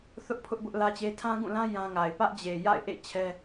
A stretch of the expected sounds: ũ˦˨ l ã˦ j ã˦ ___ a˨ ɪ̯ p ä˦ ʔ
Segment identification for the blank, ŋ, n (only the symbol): ŋ